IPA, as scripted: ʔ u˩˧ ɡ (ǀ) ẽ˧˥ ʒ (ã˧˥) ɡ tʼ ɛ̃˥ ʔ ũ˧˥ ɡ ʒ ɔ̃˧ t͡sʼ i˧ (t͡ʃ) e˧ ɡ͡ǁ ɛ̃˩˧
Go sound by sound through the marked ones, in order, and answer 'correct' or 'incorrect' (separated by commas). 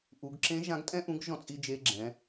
incorrect, correct, incorrect